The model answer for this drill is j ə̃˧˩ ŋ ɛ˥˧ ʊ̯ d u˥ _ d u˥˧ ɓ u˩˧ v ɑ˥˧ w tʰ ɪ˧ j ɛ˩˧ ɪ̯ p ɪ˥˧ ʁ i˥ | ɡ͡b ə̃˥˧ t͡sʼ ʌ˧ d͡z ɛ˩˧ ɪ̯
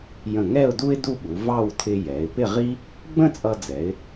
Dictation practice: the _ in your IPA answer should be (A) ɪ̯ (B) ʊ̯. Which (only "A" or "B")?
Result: A